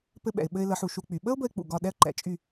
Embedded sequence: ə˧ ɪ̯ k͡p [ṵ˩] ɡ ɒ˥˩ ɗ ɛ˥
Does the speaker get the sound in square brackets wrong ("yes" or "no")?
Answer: no